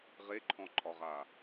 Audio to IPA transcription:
ʁeǃʰɔ̃ǃʼɒʁa

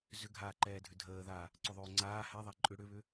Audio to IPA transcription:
zʏɡʱaːǃɛːdʱʏ dʱəːða | ǀʏðˤʏːŋ͡ǀaː hɛðˤa ǃʼʏ ɽʏβʏ

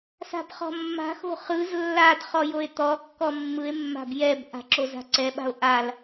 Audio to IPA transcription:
sa̤bχɔ̤mːa̤xo̤ χɯz lːadχɔ joe̯t̪ɔkːɔ mːɯe̯mːa̤b jɛbʔa̤ ǁoza̤ǀɛɓa̤o̯ ʔal

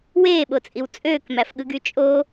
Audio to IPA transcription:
weːɓot͡sʼiw t͡sʼøːkmæfɠɯɡy t͡ʃʼo

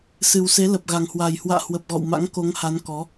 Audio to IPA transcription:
sɨ˨˩wse˨˦lə˨˩p̚ ɣa˨˩ŋhwa˨˩j hwa̰ː˧˨hwə˨˩p̚ɣɔ̰˧˨w ma̰˧˥ŋko˨˦ŋha˨˦nkɔ˨˦

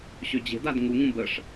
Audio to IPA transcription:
ɕød͡ʑe̤dad ŋuŋũ bəʂ

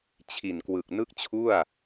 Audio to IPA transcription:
t͡ɕʰi˨˩nkwɯ˨˩k̚ nɯ˥˩k̚t͡ɕʰu˥˩a̯

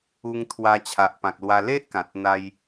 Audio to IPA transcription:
u˧ŋ t̪ʰwa˧t͡ɕʰa˨ʔpã˨k̚lwa˧ le˦ʔkã˨t̚ n̪a˦j

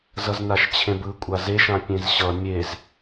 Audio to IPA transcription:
zʌznaʃt͡ɕʰẽbɯ kʷʼazeʃã pʲẽzɕʌ mʲez

